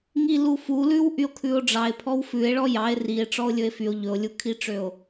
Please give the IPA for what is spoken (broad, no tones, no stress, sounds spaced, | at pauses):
ŋ i l u f u l ʉ w ʔ y o̯ kʰ ʉ o̯ ɖ͡ʐ ɑ e̯ pʰ ɔ w f ʉ e̯ ɭ ɔ j ɑ e̯ r i e̯ ʈ͡ʂ ɔ o̯ lʲ ɵ e̯ f y o̯ ʎ ɵ o̯ lʲ u kʰ i ʈ͡ʂ ø o̯